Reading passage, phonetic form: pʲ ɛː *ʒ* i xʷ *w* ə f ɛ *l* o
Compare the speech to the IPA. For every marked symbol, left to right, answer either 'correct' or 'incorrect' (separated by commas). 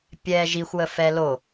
correct, correct, correct